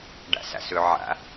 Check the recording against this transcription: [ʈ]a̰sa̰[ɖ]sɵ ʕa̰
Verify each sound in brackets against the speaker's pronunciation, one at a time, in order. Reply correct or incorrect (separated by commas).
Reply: incorrect, incorrect